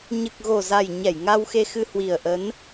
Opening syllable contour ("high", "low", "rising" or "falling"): low